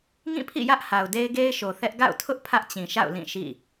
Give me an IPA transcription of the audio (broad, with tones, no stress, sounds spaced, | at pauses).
ŋ ĩ˦˨ pʰ ḭ˦˨ j ä˦ ʔ h a˨ ʊ̯ d e˦ ɪ̯ ɡ e˦ ɪ̯ ʃ o˨ θ ɛ˦ ʔ ɡ a̰˦˨ ʊ̯ tʰ ʊ˦ ʔ pʰ ä˦ ʔ t͡ɕ ĩ˨ ʃ a̰˦˨ ʊ̯ l ĩ˦˨ ʃ ḭ˦˨